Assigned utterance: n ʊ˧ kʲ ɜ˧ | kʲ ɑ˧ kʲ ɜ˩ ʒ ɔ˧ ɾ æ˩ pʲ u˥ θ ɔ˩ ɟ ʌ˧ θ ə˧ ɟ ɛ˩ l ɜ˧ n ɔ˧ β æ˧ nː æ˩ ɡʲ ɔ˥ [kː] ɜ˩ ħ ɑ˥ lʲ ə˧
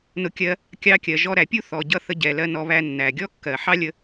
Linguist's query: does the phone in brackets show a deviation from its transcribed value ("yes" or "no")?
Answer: no